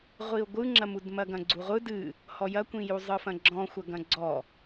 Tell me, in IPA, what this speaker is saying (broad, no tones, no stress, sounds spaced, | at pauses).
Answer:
ʁʷ i ʊ̯ ɡʷ ɯ ŋ͡ǁ ɐ m u d m ɐ ɡ ɐ̃ ɡ͡ǀ u ʁʷ ɯ d ɨ | h ɔ j ɐ kʷ ĩ j u zˤ ɯ f ɐ̃ ɡ͡ǁ ɔ̃ xʷ ɐ ɡ ɐ̃ ɡ͡ǀ ɔ